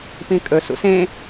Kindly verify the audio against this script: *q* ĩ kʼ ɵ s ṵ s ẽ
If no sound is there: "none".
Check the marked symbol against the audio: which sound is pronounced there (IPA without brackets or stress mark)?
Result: p